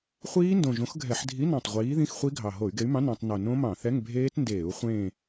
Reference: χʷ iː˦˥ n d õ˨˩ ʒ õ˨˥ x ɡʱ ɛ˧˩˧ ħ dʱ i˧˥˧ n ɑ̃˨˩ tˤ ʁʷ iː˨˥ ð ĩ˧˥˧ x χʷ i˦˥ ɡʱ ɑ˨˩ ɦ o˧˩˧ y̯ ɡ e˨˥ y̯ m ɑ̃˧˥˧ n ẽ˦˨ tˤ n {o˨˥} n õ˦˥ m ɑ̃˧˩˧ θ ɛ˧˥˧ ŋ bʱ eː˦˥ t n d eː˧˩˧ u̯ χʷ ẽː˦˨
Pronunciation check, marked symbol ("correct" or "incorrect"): incorrect